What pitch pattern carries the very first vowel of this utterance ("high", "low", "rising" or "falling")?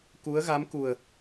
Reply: rising